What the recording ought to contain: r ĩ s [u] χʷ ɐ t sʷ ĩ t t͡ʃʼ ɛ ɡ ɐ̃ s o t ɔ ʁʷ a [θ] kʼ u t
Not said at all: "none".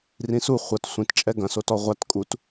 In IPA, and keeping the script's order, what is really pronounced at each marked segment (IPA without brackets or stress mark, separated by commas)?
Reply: u, t